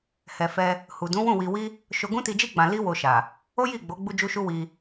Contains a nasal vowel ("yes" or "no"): yes